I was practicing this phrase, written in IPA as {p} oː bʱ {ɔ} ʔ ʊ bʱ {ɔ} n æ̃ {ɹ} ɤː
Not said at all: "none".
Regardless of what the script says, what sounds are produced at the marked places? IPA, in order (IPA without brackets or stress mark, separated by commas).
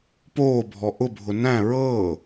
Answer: p, ɔ, ʊ, ɹ